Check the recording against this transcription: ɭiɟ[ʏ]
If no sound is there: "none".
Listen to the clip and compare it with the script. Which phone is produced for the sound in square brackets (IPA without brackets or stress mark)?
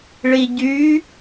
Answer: y